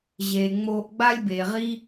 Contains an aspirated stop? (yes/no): no